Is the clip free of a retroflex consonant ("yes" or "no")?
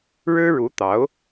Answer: no